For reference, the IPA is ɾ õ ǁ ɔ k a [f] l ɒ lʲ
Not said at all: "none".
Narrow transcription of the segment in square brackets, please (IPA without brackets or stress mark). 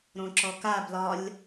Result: b